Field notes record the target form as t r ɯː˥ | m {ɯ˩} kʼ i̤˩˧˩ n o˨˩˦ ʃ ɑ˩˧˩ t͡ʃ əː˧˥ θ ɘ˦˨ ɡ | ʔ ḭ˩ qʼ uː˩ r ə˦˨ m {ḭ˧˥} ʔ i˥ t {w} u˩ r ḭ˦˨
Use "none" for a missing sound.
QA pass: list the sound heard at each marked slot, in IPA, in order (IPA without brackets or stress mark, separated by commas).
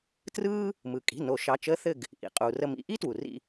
ɯ˩, ḭ˧˥, w